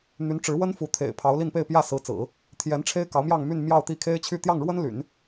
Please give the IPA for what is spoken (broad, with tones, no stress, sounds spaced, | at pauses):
n̪ y˧˥ n ʈ͡ʂ ɻ̩˧˥ w ə˥ n f u˧˥ t̪ʰ ḛ˨˩ ɪ̯ pʰ ɑ˧˥ ʊ̯ l i˥˧ n p e˥˧ ɪ̯ p j ä˥˩ s ɹ̩˧˥ t͡s ɹ̩˨˩˦ | t̪ʰ j ɛ˧˥ n ʈ͡ʂʰ e˥ ɪ̯ k ɑ˧˥ ʊ̯ m j ɑ˥˧ ŋ m y˥˧ n m j ɑ˥˧ ʊ̯ t̪ i˥˩ kʰ e˥ ɪ̯ t͡ɕʰ y˥˧ t̪ j ɑ˥˩ ŋ ɻ w ə˥ n l y̰˨˩˦ n